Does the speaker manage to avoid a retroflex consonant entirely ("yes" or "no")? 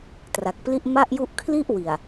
yes